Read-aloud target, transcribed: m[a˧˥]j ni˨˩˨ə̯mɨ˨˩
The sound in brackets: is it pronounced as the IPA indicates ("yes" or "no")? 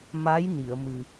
yes